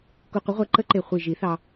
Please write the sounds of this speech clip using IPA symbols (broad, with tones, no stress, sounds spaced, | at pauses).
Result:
k u˧ qʷ ə˧˥ ʁʷ ɛ˧˥ ǃ ə˧˥ ǃ e˨˩ χʷ i˨˩ ʒ i˨˩˦ θ ɑ˧